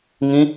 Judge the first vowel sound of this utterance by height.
high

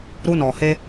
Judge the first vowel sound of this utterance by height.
high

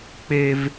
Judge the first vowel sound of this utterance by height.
mid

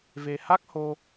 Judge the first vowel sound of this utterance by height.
mid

